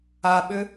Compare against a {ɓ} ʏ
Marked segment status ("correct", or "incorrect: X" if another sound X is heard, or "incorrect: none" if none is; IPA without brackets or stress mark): correct